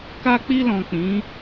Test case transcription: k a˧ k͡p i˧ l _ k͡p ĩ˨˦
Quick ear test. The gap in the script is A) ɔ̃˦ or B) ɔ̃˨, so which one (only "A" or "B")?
B